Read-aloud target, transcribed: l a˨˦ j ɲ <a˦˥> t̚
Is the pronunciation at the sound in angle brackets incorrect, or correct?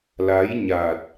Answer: incorrect: a˨˩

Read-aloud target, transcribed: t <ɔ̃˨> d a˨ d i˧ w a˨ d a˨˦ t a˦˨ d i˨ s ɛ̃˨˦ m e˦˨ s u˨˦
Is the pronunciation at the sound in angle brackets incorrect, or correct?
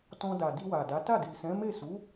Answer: incorrect: ɔ̃˧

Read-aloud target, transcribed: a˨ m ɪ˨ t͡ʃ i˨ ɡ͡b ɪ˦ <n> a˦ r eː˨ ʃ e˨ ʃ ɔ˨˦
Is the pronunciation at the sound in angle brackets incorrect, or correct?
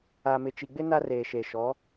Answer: correct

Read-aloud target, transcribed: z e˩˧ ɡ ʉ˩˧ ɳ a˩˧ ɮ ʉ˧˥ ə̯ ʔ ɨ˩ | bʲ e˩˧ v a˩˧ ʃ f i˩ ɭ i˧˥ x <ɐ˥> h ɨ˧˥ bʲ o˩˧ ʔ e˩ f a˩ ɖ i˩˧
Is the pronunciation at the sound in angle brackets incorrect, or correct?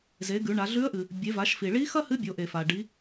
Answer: correct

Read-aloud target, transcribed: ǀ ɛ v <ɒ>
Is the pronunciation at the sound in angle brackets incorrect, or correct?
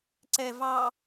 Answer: incorrect: ɑ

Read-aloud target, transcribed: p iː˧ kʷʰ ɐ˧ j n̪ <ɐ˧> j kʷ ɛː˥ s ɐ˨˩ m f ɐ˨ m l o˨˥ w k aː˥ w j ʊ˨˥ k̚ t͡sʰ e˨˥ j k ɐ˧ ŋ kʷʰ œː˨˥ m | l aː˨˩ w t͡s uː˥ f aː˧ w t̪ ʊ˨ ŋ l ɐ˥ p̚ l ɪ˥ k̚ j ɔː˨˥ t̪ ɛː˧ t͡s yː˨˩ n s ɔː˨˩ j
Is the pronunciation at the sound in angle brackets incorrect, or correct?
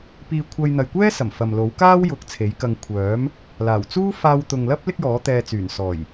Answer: incorrect: ɐ˨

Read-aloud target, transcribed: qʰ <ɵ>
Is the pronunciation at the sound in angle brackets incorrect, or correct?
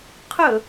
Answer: correct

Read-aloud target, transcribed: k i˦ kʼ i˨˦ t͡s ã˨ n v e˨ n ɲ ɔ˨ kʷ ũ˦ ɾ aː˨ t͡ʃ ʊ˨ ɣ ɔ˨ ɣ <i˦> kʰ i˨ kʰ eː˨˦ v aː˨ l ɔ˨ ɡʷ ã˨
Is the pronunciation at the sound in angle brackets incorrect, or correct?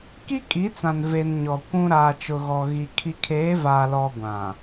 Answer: incorrect: i˨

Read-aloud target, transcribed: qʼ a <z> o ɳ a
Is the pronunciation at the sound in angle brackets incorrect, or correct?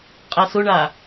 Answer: incorrect: s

